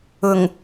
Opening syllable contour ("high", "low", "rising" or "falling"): low